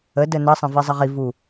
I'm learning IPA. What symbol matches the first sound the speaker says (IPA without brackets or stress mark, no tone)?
ə